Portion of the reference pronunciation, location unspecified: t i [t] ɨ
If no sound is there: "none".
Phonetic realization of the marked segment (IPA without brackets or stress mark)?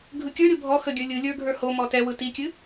kʲ